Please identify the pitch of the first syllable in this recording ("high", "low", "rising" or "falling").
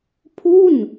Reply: falling